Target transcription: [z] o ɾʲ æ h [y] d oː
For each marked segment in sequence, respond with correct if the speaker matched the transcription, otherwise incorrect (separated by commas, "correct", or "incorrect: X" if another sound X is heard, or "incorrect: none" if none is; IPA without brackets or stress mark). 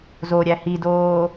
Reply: correct, incorrect: i